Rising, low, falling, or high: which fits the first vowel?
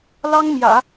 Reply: high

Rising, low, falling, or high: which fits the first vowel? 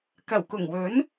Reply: low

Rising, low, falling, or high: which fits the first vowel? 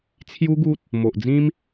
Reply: high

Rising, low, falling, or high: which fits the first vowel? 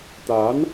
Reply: rising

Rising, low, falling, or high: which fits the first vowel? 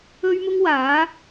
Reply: high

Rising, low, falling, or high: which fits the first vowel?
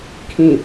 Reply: low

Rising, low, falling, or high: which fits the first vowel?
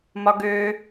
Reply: high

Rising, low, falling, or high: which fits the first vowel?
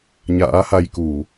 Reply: rising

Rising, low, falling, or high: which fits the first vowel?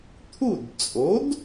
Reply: falling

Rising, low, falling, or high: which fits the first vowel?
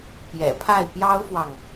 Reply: low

